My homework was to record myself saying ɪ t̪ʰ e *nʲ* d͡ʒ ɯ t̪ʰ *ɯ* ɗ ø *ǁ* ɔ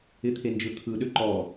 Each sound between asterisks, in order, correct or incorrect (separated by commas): incorrect, correct, incorrect